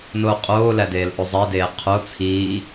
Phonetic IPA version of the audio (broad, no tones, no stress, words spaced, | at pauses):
noːqʼoːlædeːl ʔozˤedeː qʰo t͡sʰiː